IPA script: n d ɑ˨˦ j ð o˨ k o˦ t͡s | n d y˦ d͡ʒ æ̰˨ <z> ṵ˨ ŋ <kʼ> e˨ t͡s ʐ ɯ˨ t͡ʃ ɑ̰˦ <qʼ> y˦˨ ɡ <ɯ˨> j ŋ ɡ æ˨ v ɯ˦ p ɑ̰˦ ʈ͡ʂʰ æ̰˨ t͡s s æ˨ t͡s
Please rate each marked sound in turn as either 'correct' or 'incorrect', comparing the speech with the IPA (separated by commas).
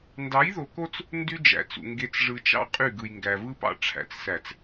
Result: incorrect, incorrect, correct, correct